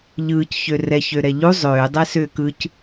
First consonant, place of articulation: palatal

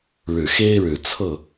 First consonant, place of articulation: retroflex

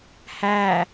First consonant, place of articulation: glottal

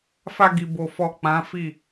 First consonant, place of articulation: labial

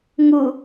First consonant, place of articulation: velar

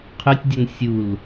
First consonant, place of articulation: uvular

